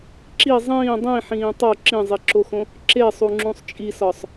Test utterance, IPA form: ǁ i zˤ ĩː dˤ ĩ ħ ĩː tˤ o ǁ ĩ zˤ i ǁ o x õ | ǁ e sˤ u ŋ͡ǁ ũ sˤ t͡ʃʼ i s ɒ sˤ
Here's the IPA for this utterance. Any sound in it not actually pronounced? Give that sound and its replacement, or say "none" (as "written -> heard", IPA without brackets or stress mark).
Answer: none